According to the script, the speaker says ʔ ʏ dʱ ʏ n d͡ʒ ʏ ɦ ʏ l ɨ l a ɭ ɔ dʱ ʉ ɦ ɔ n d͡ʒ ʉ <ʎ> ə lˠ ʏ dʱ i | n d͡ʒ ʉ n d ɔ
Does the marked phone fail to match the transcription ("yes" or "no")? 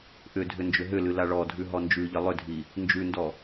no